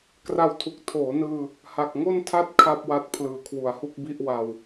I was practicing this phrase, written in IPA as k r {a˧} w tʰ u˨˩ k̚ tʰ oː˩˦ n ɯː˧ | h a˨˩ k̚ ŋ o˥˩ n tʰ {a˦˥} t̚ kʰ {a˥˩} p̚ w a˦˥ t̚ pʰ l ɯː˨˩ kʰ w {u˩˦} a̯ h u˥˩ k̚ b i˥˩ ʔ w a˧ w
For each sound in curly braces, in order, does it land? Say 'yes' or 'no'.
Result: yes, no, yes, yes

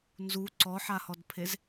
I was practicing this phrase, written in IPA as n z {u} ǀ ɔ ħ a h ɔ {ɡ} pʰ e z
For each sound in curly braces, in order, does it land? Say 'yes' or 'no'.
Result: yes, no

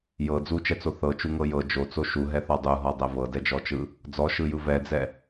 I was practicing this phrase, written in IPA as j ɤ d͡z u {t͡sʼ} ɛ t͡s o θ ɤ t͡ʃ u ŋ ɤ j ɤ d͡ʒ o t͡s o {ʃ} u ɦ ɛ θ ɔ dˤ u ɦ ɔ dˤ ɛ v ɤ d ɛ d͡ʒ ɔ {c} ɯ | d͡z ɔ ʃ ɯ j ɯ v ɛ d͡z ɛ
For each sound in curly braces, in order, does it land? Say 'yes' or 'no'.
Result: no, yes, no

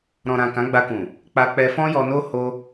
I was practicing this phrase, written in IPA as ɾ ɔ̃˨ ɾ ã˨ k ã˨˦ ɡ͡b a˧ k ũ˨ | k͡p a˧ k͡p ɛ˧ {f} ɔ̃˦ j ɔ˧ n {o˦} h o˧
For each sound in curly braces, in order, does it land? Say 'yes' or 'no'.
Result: yes, yes

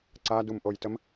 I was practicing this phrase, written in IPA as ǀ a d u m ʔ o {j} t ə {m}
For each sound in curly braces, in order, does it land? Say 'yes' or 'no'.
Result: yes, yes

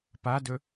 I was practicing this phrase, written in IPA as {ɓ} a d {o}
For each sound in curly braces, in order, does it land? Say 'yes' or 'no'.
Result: no, no

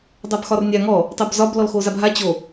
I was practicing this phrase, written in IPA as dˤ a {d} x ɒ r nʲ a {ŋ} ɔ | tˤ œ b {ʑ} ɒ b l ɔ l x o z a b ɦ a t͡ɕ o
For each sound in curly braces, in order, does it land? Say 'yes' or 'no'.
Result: no, yes, no

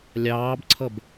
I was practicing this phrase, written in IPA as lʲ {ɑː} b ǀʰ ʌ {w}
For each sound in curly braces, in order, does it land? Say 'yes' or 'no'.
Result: yes, no

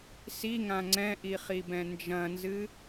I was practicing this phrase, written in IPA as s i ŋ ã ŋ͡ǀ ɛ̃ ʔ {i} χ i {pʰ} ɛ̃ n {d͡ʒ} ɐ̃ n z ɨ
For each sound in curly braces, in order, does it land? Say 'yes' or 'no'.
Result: yes, no, yes

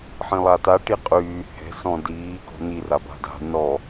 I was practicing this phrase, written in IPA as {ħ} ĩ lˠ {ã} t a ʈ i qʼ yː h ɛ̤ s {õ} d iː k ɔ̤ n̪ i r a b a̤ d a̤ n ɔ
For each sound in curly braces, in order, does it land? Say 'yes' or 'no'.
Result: yes, no, no

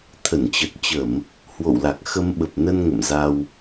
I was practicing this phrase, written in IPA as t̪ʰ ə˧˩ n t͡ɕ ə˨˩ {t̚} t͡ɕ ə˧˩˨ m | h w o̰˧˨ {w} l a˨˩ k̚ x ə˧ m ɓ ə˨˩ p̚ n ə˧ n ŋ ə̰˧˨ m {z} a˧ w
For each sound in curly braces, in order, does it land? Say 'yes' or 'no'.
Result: yes, yes, yes

